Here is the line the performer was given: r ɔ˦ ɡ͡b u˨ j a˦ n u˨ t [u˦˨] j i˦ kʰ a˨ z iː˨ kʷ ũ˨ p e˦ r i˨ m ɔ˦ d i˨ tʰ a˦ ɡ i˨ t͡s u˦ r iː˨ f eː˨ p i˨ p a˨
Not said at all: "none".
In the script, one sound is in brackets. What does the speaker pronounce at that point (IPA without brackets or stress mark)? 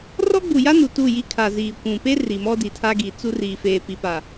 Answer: u˦˨